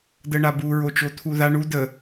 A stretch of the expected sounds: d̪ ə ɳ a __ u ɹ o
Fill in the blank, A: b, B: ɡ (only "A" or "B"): A